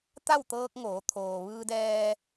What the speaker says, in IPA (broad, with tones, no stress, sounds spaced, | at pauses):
t̪ a˥˨ w t̪ ɤː˧ k̚ ŋ oː˩˧ t̪ʰ oː˩ ʋ ɯː˧ d ɛː˧